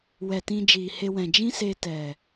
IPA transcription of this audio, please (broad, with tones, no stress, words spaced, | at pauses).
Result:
wɛ˨tĩ˧ d͡ʒiː˨he˧wɛ̃˨ d͡ʒĩ˦se˧tɛ˨